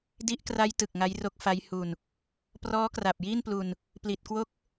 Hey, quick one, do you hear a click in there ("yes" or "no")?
no